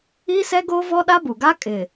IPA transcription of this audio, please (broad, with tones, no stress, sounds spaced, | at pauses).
iː˦ s ɛ˦ ɡ oː˦ v ɔ˦ ɗ a˦ b u˨ ɡ a˦ kʼ ɪ˨